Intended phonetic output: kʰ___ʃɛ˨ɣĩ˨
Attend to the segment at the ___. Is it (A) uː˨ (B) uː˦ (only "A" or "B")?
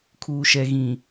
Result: A